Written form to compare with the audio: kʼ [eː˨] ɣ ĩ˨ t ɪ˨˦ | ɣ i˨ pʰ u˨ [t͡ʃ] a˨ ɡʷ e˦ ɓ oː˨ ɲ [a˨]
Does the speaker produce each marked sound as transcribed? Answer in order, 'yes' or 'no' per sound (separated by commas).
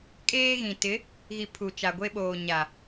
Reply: no, yes, yes